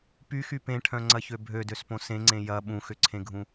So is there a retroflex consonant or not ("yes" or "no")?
yes